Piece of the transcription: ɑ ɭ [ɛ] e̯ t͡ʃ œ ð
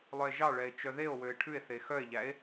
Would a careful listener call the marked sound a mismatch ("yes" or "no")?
no